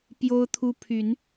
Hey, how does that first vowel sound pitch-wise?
high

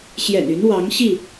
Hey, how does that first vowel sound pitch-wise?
low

